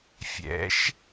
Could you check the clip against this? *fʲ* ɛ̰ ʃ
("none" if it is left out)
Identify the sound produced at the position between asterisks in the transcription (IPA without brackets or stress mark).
fʲ